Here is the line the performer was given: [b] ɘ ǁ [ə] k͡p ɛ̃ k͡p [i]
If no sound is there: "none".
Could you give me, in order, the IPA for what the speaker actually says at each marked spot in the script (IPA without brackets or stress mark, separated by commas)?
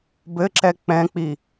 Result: b, ɛ, i